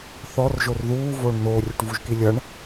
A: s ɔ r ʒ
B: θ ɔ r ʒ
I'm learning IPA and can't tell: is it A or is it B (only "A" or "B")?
B